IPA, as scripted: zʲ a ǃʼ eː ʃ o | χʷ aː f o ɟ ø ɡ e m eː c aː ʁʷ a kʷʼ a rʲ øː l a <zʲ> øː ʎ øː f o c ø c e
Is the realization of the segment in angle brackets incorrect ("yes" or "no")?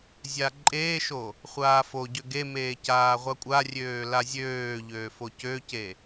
no